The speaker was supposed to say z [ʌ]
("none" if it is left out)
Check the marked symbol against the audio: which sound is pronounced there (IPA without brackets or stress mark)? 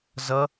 ʌ